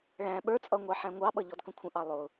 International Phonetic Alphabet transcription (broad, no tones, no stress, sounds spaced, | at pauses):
ɭ æ̃ ɓ ə˞ t͡sʼ ʌ ŋʷ ɑ ħ æ̃ ŋʷ ɑ ɓ ʌ ʎ ɔ d k ə̃ kʷʰ ə̃ ʔ ɑ lˠ ʊ